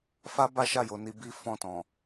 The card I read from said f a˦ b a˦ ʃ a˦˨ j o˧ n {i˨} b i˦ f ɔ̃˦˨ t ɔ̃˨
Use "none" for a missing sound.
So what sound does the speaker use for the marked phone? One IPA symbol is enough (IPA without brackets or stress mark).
i˧